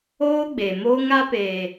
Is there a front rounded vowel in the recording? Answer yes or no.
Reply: no